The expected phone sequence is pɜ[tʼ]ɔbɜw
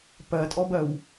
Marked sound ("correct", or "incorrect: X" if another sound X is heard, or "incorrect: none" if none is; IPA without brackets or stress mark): correct